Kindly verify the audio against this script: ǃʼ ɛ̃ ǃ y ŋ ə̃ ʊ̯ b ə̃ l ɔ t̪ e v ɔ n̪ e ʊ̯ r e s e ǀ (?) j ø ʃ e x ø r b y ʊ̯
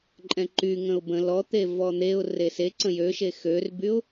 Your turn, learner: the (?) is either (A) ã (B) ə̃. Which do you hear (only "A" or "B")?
B